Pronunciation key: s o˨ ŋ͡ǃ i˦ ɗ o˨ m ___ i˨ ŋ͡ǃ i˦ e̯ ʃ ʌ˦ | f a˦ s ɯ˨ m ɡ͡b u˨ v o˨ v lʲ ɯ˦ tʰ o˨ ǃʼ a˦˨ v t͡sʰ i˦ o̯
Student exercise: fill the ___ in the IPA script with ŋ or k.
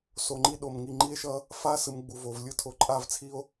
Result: ŋ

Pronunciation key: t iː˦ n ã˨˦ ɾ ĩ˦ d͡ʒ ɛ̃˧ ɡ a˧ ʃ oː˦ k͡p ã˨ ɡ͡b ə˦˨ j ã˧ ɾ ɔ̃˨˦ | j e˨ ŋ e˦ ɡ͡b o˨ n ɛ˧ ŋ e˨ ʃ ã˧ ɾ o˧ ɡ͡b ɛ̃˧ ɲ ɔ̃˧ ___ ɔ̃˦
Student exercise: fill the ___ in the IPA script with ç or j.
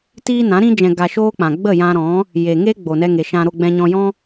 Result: j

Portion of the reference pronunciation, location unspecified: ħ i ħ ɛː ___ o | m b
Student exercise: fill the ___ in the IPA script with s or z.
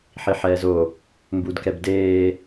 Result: z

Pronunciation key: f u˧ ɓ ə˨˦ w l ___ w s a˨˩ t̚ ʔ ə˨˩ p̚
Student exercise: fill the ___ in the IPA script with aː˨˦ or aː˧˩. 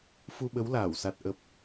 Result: aː˧˩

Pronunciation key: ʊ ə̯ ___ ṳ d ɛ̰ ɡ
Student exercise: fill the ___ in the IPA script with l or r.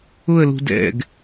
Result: l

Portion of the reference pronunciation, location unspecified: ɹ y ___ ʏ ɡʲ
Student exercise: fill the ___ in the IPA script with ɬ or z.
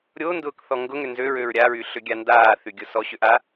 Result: ɬ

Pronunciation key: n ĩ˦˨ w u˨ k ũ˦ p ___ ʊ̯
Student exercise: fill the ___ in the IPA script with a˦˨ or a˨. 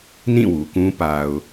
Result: a˨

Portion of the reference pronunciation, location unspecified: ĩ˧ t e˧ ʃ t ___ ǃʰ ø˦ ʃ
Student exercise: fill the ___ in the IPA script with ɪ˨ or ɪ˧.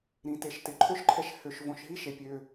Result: ɪ˨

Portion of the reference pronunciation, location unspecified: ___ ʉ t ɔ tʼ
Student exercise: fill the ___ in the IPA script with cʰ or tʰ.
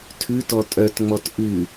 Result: tʰ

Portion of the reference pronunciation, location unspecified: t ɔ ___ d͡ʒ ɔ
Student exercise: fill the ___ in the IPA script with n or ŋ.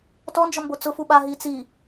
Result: n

